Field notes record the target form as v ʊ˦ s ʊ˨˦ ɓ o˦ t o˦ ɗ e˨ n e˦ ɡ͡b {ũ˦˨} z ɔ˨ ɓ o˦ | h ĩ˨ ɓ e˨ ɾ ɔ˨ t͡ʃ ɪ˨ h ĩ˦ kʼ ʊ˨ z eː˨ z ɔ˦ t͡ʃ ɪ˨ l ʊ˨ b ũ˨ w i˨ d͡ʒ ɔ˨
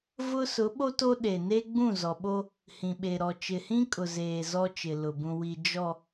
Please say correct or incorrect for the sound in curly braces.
correct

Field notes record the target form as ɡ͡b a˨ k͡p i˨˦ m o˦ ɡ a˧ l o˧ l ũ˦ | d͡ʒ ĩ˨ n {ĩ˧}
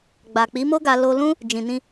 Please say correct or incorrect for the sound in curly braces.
correct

